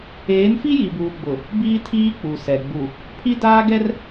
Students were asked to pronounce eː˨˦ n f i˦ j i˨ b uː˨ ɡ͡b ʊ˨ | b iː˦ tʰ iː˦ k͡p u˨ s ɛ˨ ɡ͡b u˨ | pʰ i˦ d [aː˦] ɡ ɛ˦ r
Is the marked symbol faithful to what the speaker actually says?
yes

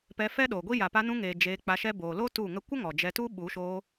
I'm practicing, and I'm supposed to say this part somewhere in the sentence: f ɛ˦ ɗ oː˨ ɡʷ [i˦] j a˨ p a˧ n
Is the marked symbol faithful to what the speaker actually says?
yes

